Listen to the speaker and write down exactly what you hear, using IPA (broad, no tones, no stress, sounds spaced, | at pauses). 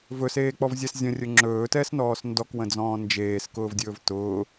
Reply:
v ɵ s eː k͡p ɔ v zʲ ɛ s zʲ ə̃ rʲ ɵ ŋ͡ǁ ɵː t ɛ s n ɔː s n d ɔ k w ə̃ d͡z ɔ̃ː n d͡ʒ eː s k ʊː v dʲ ɵː v t ʊː